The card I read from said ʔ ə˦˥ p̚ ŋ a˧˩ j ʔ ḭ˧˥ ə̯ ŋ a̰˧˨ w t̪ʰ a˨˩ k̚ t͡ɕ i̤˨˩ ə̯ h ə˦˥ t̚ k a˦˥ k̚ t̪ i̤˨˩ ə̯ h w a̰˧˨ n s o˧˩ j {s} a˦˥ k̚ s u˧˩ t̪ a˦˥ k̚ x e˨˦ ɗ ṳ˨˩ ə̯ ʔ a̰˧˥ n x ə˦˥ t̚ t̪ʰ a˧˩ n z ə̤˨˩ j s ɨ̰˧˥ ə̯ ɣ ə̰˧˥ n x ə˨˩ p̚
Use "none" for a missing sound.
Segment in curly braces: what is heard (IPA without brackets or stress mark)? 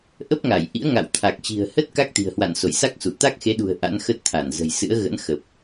s